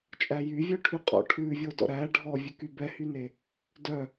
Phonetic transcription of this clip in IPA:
t͡ʃʼ æ j y vʲ œ ʈʰ y qʼ ɔ̰ ʈʰ ʉ vʲ o d ɔ̰ ɾ æ ɖʱ ɔ vʲ ʉ k y b ɛ h y n e | d œ

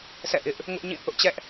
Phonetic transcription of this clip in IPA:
s ɛ̰˦˨ ʔ ɪ˦ ʔ | ŋ ʊ˦ ʔ ɲ ĩ˦˨ θ ʊ˦ ʔ t͡ɕ ɛ˦ ʔ

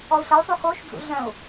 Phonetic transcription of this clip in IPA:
ɔ u̯ ɬ ə y̯ sˤ y x o ʃ d͡z ṵ ɮ œ̃ u̯

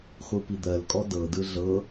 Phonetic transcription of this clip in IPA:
χʷ ɯ p i d̪ ɜ l kʼ ɔ d ɤ d ɯ ɮ ɤ

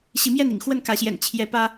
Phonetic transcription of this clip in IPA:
ɕ i˨˦ m j ɛ˥˨ n ḭ˨˩ ŋ x w ə˥˨ n k ä˨˦ ɕ j ɛ̰˨˩ n t͡ɕʰ j ɛ˨˦ p ä˦

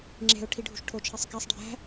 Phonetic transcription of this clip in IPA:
ŋ͡ǁ e̤ ʊ̯ ʈʰ i ɖʱ ṳ ʃ ʈʰ o t͡ʃʰ e sˤ k æ sˤ ɖʱ æ̤

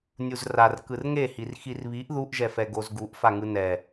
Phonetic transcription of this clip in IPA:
nʲ u z r a r k ɯ r ŋ e h i r x i r β i ʔ ð u ʔ ʒ ɛ f ɛ ɡ o z ɡ u ʔ f a ŋ ɯ n ɛ

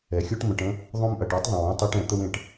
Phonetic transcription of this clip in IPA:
ɛ˩ xʲ o˥ ʈ m ə̃˨ ʈ ə̃˥ | ðˤ õ˦ m ʔ ɐ˩ ʈ e˥ tˤ ðˤ ə̃˩ w õ˥ tˤ e˦ ʈ ɛ̃˩ t̪ ə˦ w ẽ˨ ʈ

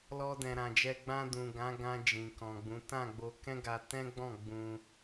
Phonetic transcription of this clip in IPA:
l ɔ˧ d ɛ̃˨ ɾ ã˨ d͡ʒ ɛ˧ ɡ͡b ã˧ d ũ˨ ɡ ã˨˦ ɡ ã˧ d͡ʒ ĩ˨ k ɔ̃˨ ɡ͡b ũ˨˦ t ã˦˨ ɡ͡b o˧ k ɛ̃˦ ɡ a˧ t ɛ̃˦ ɡ͡b ɔ̃˦˨ ɡ͡b ũ˧

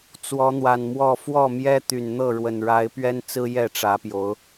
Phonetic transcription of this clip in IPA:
t͡s w ɔ˨˦ n̪ w a˨˩ n m w ɔ˥˨ f w ɔ˥˨ m j ɛ˦ t̪ y˨˩ n n̪ ɤ˥˨ ɻ w ə˨˩ n ɻ a˨˦ ɪ̯ p ɥ ɛ˦ n t͡s ɹ̩˦ j ɛ˥˨ ʈ͡ʂ ä˨˦ p j o˨˦ ʊ̯

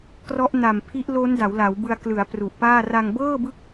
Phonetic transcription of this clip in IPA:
k r ɔ˦˥ ʔ n a˨˩ m pʰ i˦˥ ʔ l o˦˥ n d a˩˦ w l a˩˦ w b ɯ˧ a̯ k l ɯ˩˦ a̯ p r u˨˩ ʔ p aː˥˩ r a˧ ŋ b ɤː˥˩ b ɯ˦˥ k̚

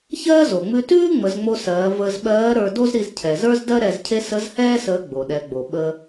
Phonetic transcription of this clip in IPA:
ç ɜː˥ z o˩ ŋ͡m ʉ˧ t ʉː˥ ŋ͡m ə˩˧ z ŋ͡m o˧ s ɜː˩˧ v əː˧ z ɓ ɜː˧˥ ɾ ə˞˧ d o˥ z ɾ i˧ z cʰ ɛ˩ z ə˞˥ z d ɜ˥ ɾ ɛ˧ z cʰ e˥ s ə˧˥ z h ɛː˥ s əː˧˥ ɡ͡b o˩ ɗ ɛ˩˧ ɡ͡b o˩ ɓ ə˧

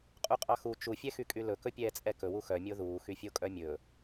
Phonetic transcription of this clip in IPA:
qʼ u qʼ ɑ x u t͡ʃ u fʲ ɛ x y kʼ y l ɵ k ɵ pʲ ɛː t͡sʼ ɛ k ɵ w u x œ mʲ o ð uː x y fʲ o kʼ œ mʲ ɵ

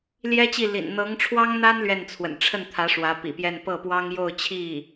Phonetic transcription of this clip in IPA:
l j ɛ˥ t͡ɕ i˥˩ l ḭ˨˩ n n̪ ɤ˧˥ ŋ ʈ͡ʂʰ w ɑ˥ ŋ n̪ a˥ n l ɥ ɛ˥˩ n t͡sʰ w ə̰˨˩ n ʈ͡ʂʰ ə˥˩ n t̪ʰ ä˧˥ ʂ w ä˧˥ p ḭ˨˩ p j ɛ˥˧ n p ɤ˥˩ p w ɑ˥ ŋ j o˥˧ ʊ̯ t͡ɕʰ i˥˩

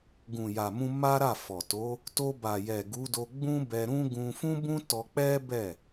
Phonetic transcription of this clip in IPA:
ɡ ũ˨ j a˨ m ũ˧ m a˦ ɾ a˦˨ f ɔ˨ t o˨˦ | t o˧ b a˨ j ɛ˨ ɡ u˨˦ d o˧ ɡ͡b ũ˦ b ɛ˧ ɾ ũ˦ ɡ ũ˧ f ũ˦ b ũ˦ t ɔ˧ k͡p ɛ˦ b ɛ˦˨

